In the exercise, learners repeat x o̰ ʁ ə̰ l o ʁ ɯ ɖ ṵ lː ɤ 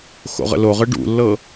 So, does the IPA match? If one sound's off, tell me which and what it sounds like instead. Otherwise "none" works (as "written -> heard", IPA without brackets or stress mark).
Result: none